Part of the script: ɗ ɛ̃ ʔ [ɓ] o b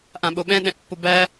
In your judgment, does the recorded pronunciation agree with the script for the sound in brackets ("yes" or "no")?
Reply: no